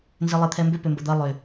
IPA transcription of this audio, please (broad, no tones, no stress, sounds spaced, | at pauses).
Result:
n z ɪ lˠ e t̪ʰ ɛ m b ʏ p ʏ m b ə d̪ ɐ lˠ ʏ